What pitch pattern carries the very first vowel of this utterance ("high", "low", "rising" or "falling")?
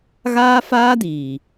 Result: high